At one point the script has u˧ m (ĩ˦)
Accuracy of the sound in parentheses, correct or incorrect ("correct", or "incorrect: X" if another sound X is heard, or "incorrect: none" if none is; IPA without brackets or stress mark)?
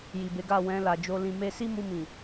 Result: incorrect: ĩ˨